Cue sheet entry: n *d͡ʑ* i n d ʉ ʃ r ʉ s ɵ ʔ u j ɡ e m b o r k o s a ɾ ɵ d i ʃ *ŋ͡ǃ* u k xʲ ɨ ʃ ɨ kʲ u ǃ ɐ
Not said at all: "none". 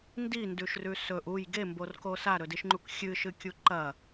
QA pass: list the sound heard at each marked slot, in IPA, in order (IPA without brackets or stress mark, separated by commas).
d, ŋ͡ǃ